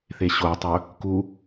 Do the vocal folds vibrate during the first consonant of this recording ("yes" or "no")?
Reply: no